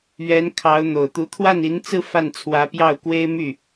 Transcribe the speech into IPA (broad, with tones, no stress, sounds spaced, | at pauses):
ɥ ɛ˧˥ n kʰ ɑ˧˥ ʊ̯ n̪ o˨˩ ʊ̯ t̪ u˧˥ t̪ʰ w a˥˩ n i˧˥ n t͡s ɹ̩˥˧ f a˥˩ n t͡sʰ w ä˧˥ p j ɑ˥˩ ʊ̯ k w e˥ ɪ̯ m y˥˩